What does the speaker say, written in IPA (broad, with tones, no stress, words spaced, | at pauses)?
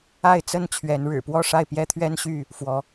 a˥˨ɪ̯t͡sə˥˨n t͡ɕʰɥɛ˨˦nɻɻ̩˨˩ pwɔ˥˨ʂa˥˨ɪ̯pjɛ˦t̪ʰɥɛ˦n ɕy˥˨ | fwɔ˨˦